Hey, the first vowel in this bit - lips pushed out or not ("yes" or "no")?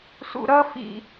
yes